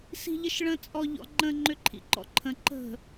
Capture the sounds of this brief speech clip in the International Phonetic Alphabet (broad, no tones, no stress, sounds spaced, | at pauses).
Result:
s i̤ ʎ ə ʃ ɭ ə̃ t͡sʼ ɔ ʎ ɔ̰ ŋ͡ǃ ə̃ ŋ͡ǃ ʏ ǃʰ ḭ ǃ ɔ̰ ǃʰ ə̃ ǃ ə̤